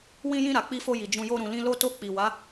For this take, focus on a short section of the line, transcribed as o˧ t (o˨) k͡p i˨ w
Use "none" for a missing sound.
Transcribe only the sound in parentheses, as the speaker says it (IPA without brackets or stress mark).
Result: o˧